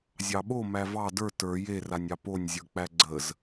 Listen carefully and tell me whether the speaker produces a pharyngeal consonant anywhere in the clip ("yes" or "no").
no